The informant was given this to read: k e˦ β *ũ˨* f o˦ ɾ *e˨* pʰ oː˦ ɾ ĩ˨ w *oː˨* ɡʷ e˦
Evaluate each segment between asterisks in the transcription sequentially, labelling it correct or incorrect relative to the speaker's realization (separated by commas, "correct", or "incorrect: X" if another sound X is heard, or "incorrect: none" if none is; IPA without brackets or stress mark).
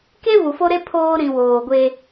incorrect: u˨, incorrect: e˦, correct